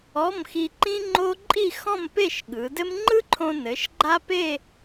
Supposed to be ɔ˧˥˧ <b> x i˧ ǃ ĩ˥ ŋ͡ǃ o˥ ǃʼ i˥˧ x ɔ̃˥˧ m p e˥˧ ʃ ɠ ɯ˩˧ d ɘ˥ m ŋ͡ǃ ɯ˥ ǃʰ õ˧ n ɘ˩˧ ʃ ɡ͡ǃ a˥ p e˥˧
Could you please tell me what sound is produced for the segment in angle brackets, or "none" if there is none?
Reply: m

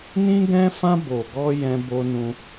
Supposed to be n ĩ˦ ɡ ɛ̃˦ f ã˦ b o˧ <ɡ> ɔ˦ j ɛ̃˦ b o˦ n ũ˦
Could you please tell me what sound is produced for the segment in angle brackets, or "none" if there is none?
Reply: ɡ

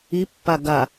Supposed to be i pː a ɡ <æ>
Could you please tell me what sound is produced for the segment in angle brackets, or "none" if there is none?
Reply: a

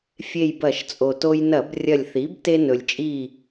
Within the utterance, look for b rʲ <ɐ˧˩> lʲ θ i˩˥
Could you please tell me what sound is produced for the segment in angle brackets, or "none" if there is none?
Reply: ɐ˧˩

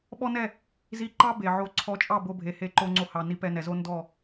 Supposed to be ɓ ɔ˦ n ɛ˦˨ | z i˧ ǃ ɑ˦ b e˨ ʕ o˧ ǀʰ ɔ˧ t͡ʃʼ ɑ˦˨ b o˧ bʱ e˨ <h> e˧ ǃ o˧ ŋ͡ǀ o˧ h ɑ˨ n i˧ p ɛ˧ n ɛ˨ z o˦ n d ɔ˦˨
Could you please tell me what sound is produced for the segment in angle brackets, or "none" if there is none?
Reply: h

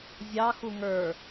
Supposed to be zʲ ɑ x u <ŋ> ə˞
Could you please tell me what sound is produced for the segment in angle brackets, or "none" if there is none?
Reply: ŋ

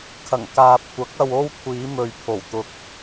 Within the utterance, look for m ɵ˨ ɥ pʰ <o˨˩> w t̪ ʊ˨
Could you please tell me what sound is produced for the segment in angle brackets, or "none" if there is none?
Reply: o˨˩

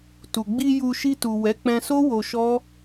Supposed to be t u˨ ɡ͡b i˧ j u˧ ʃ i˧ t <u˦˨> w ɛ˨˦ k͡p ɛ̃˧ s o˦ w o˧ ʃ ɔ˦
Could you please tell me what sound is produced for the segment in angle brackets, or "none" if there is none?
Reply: u˨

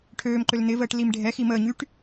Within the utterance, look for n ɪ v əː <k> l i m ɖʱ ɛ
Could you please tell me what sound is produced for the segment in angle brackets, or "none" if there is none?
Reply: ʈ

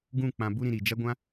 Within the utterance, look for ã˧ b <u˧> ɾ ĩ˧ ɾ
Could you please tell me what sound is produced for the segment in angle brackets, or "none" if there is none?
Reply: u˦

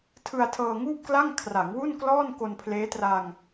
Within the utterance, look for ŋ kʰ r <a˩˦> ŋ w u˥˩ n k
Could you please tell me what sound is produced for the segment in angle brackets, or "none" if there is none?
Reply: a˩˦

